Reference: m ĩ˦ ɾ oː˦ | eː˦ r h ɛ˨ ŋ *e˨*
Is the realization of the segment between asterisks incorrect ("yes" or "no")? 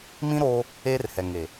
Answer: no